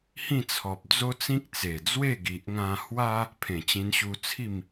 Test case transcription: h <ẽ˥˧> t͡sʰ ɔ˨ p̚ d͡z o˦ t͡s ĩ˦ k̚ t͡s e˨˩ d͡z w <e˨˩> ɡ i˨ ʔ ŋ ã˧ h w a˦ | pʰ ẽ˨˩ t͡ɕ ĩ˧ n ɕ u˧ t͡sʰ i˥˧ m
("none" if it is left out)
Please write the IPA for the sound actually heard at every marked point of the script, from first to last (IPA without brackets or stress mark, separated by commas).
ĩ˥˧, e˥˧